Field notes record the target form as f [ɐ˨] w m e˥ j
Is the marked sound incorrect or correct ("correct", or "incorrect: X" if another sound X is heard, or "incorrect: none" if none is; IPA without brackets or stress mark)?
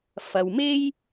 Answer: correct